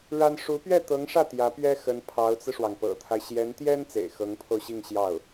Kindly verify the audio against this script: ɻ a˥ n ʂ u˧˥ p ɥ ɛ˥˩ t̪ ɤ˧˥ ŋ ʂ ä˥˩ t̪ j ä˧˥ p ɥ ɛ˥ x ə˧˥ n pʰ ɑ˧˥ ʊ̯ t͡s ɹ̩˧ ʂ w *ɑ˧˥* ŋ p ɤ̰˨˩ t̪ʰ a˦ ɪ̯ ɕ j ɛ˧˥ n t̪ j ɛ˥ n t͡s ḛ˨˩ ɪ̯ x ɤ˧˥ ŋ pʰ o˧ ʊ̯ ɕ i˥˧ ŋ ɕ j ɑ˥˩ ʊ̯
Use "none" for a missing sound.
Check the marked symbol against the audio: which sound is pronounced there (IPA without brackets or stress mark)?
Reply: ɑ˩